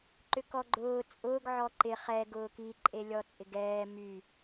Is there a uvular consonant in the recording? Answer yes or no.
yes